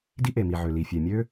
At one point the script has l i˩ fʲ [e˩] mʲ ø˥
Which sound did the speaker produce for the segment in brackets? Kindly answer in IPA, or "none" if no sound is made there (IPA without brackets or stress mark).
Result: e˩